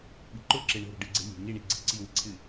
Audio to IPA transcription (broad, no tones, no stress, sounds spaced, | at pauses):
ɓ i̤ ǃ ʊ ǁ e ɳ o̤ ɾ o̤ ɖ ɨ ɡ͡ǀ e̤ lʲ e̤ ŋ i ɳ i ɡ͡ǀ i̤ ǀ i w i̤ ǀʰ ɨ